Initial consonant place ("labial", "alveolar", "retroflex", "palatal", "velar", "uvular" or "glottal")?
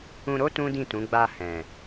alveolar